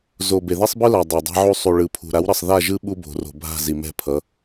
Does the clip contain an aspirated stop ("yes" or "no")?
yes